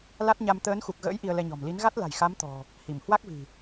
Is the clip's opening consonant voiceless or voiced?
voiced